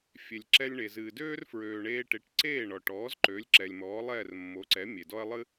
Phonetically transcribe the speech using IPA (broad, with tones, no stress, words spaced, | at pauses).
fʲe˩lʲǁɛ˧lʲɳe˩ zɨː˩døː˥rfɹøː˩ɳeː˧ ʈe˩˥ʈǀeː˥˩ɳɔ˩ʈɔː˩˥z ǃø˩˥lʲ ǁɛ˩lʲmɔː˩˥lˠɛː˥˩r mːo˩˥ǀɛ˩˥ mʲe˩dɔ˥ɐ̯ lˠɨ˥